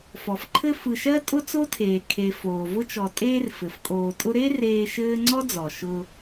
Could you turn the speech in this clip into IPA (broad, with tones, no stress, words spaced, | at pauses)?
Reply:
fɔ˩fǃʰɘ˦fɯ˨ʃɜ˥ tʼʊ˥t͡so˥tʰeː˩ kʰe˨foː˩ vʊ˥t͡ʃɔ˨ tʼeː˦r fɘ˩fkʼoː˨tʼʊ˥ ɾe˥ reː˦ʃɘː˥ ŋ͡ǀɔ˥d͡zɔ˩ ʃʊ˨